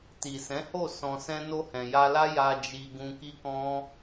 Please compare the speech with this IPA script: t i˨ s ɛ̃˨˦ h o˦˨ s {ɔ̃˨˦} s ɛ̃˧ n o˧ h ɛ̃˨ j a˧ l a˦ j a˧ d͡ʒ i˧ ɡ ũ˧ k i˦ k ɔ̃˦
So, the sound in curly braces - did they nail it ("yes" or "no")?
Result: no